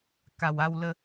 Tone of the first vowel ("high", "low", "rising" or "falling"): low